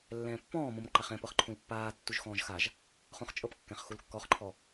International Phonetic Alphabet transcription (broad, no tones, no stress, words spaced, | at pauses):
lːɛ̃ːpːɔ̃ːmõm ǃæχɛ̃pɤχǃʰũl pːaː tːuʒxɔ̃ːʒxaʒ | χõχt͡ʃʼɤpkːɛ̃χ xulkːɔχǃʰɔ